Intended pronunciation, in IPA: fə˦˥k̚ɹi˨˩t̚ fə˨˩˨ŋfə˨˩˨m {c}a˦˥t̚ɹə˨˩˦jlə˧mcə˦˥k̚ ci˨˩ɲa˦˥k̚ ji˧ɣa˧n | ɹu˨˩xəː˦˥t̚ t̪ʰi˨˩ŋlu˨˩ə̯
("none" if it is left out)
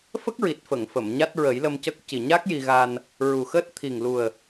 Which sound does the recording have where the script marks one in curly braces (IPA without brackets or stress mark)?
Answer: ɲ